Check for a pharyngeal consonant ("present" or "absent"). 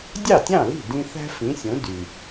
absent